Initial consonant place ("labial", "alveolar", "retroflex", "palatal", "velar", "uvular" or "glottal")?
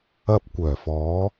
labial